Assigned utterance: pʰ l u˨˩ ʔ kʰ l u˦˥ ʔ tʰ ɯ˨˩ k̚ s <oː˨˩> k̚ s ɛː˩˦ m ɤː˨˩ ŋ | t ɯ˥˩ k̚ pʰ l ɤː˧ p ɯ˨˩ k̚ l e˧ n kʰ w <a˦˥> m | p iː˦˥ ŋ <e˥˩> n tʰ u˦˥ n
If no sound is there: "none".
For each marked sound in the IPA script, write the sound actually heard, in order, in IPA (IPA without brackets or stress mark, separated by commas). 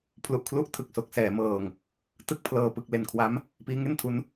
o˨˩, a˦˥, e˥˩